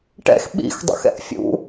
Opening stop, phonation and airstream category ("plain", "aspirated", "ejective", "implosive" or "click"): plain